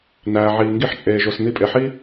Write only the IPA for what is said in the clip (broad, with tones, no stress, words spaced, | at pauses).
næː˩ ʕiː˩ŋɡi˧ħt͡ʃʼeː˩ʒo˩s ni˧pʼe˩ħi˥